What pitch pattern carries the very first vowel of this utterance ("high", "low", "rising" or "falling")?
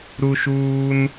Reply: high